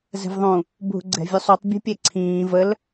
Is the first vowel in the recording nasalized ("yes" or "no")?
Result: no